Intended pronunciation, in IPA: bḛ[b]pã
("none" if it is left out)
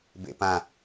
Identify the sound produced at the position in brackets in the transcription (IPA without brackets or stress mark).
none